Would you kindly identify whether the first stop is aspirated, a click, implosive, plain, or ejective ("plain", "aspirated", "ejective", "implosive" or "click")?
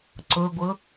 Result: click